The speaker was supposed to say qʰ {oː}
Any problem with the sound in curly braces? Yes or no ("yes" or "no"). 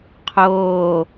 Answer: no